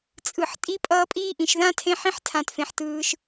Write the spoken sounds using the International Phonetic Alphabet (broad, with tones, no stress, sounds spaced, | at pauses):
t͡sʼ ɯ˧ ħ tʼ i˦ pʼ ʌː˦ pʼ i˦ ʔ ĩ˧ ʃ ð ã˦ tʰ ẽ˦ ħ ĩ˦ ħ tʰ ã˧ t f ẽ˧ ħ t ɯː˧ ʃ